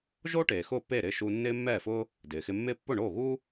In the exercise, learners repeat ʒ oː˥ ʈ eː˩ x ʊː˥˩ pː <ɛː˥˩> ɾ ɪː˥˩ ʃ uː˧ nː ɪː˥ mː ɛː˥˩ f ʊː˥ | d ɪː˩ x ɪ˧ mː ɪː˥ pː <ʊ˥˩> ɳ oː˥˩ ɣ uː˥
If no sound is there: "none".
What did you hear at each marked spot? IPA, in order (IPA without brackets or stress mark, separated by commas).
eː˥˩, ʊ˥˩